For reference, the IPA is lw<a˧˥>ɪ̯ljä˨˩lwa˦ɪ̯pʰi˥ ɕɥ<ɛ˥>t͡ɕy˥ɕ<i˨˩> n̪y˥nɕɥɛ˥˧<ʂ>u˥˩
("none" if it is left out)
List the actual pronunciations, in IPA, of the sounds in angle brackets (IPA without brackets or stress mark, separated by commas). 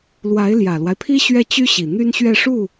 a˧˥, ɛ˥˩, i˨˩, ʂ